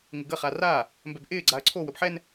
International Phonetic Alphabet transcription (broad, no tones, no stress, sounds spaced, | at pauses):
ŋ ɪ ɡ ə χ a r aː | m b ɛ b ʔ ɪː ɡ͡ǀ a ɐ̯ ǀʰ o w ə b ħ ɛ n